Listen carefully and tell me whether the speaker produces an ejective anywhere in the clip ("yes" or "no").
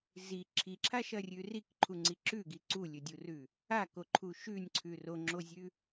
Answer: no